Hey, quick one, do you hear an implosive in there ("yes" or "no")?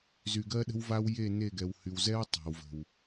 yes